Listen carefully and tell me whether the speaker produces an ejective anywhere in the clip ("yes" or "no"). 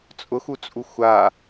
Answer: yes